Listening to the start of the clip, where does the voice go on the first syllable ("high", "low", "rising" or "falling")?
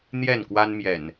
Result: falling